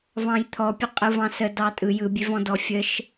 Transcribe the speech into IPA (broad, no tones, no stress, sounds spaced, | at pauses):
v ɑ̃ j t̪ʰ ɔ pʲ ə qʼ ɯ v ɑ̃ s ə d ɑ tʼ ɯ j ɯ bʲ e v ɔ̃ d ɔ fʲ ə ʃ